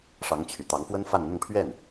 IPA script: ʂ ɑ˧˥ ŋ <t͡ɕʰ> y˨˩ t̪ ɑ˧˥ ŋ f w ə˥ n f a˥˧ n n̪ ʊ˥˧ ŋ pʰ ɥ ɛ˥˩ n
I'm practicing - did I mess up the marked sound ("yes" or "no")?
no